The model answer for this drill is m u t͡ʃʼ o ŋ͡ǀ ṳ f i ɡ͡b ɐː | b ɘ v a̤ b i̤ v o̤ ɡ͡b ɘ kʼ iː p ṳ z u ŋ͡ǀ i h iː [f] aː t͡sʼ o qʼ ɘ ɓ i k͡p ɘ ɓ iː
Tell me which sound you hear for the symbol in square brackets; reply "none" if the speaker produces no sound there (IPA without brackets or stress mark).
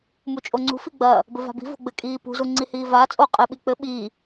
v